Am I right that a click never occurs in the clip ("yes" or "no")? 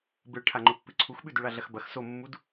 no